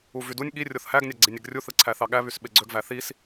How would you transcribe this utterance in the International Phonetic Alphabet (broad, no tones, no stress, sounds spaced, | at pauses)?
u v y d u nʲ ɠ i rʲ o θ h æ ɡ nʲ ɑ ɡ͡ǀ i nʲ e ɡ rʲ u θ ɯ ǀʰ æ θ ɑ ɠ æ β y s ɓ e ɡ͡ǀ ø ɡ v æ θ i s